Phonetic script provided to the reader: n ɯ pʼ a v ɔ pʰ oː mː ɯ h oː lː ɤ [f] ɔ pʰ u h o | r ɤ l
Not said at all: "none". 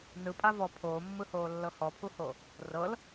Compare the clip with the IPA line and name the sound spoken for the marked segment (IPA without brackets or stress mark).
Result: h